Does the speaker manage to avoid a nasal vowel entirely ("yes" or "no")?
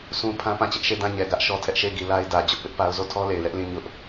no